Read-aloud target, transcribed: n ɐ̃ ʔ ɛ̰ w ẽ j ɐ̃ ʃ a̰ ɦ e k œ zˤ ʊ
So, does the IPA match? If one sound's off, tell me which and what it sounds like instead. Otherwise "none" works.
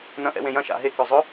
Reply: none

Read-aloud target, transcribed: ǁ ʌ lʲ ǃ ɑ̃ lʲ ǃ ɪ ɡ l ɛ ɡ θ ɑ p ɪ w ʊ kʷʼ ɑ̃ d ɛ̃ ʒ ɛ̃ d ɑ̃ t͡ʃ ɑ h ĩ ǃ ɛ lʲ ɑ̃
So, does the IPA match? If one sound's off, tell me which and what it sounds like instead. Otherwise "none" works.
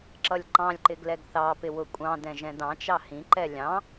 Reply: none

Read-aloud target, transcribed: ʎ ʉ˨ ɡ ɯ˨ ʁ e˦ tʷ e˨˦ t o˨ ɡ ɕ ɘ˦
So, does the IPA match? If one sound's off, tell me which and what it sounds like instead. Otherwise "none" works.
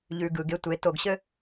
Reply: ʁ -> ɡ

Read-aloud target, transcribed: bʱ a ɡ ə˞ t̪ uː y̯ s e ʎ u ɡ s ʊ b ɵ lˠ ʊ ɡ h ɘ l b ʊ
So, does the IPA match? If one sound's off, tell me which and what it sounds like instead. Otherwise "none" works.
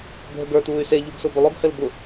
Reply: a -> ə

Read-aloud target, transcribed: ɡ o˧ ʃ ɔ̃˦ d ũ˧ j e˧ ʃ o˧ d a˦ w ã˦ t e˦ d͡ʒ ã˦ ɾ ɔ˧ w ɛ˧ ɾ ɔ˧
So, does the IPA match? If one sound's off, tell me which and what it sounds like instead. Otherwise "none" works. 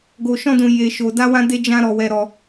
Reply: t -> d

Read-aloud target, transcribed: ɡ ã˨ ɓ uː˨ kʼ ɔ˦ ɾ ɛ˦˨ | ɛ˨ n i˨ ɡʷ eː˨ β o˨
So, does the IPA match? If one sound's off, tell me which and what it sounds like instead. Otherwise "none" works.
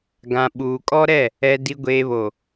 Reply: n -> d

